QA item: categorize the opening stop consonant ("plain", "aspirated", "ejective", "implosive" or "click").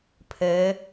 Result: aspirated